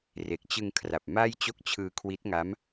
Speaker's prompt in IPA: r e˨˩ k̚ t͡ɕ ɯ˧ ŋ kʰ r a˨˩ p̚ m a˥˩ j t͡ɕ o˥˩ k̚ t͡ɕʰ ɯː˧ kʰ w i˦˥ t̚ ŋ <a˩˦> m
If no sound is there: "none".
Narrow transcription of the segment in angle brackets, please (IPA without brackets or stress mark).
a˦˥